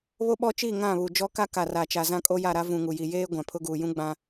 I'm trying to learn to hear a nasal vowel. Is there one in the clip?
yes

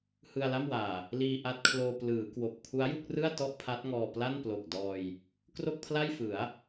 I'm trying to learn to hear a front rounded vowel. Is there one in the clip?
no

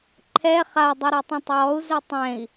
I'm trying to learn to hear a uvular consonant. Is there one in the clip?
yes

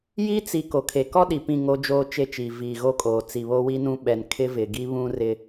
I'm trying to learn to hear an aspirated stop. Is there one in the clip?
yes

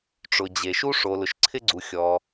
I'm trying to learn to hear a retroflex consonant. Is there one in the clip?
yes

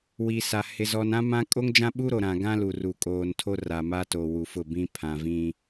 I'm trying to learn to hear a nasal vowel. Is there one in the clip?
yes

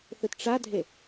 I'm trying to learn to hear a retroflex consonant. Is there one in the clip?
yes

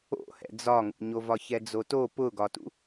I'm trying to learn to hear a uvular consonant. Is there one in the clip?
no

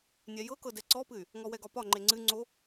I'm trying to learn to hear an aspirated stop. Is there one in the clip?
no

